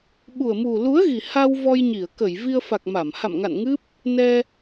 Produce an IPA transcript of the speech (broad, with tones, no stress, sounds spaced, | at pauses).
ɓ u˨˩ ə̯ m u˨˩ l u˨˦ ə̯ ɣ i˨˩ h a˧ w v ɔ˧ j ɲ i˧˩ ə̯ k ə˧˩ j v i˧ ə̯ f a˨˩ k̚ m a˧˩ m h a̰˧˨ m ŋ a̰˧˨ n ŋ ɨ˦˥ p̚ | n ɛ˧